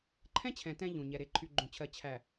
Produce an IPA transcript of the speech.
ǃʰɛ̃˦t͡ɕʰɛ̃˨ tɛ̃˦ʎũ˨ɲɛ˨ ɾe˨ǃʰy˨ ɡ͡ǃũ˨t͡ɕʰɜ˨ t͡ɕʰæ˨

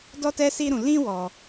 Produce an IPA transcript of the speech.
dɔ˦tɛ˦si˦ɾũ˧ lĩ˦ wɔ˦

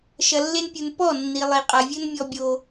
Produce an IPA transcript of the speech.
ʃɐ˨lːe˧npʲu˨n pɔ˦˨nːi˨ lˠi˨qʼa˨vʲɘ˦n mʲɔ˦bʲo˧

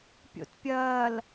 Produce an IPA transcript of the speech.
pʲo̰tpʲɐːl

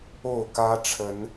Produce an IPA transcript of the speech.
o˥˨ʊ̯kä˦ ʈ͡ʂʰə˨˦n

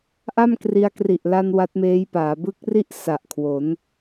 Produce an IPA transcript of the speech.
ʔa˥˩mkri˧a̯kri˨˩ʔ la˧n wa˦˥t̚meː˦˥jpaː˩˦ bɯ˦˥k̚ri˥˩ʔ sa˨˩ʔkʰwo˩˦n

